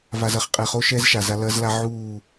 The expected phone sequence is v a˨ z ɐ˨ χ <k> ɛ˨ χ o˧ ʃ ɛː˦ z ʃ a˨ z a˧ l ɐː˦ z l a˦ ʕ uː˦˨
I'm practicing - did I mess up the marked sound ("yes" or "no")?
yes